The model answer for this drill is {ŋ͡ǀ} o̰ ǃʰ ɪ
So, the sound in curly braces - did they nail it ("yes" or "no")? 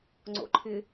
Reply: yes